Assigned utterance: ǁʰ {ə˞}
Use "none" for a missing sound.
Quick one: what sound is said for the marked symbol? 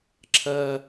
ɐ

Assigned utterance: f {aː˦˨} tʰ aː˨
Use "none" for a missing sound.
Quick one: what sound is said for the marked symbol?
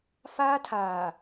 aː˦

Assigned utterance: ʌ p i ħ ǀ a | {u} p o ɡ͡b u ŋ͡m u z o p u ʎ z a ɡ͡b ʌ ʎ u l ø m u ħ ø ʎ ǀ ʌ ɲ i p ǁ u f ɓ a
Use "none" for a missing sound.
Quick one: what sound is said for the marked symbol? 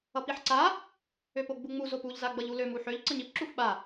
ø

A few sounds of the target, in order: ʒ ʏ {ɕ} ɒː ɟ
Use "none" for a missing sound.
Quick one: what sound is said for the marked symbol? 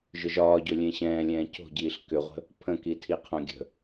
ʒ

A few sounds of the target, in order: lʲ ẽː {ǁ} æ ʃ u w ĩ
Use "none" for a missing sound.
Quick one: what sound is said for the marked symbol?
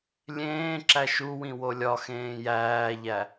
ǁ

